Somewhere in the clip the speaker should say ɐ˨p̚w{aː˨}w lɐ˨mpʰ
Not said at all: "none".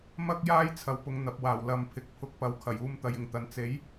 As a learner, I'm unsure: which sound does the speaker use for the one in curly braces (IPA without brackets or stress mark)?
aː˨˩